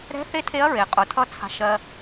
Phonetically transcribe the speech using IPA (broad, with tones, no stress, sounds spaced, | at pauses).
ɾ ɛ̤˧˥ θ e˧˥ tʰ e˧˥ ɐ̯ ɹ e˩ qʼ ʊ˩˧ tʰ ʌ˧˥ t͡sʰ a̤˧ ʃ ɜ˧